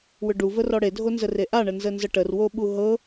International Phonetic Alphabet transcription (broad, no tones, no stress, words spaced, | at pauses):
wʏɖu vərɔɽe dʱonzəreʔa ɳənzənzəʈər woɓuɦɤ